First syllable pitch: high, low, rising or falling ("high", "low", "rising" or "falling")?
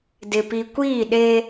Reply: low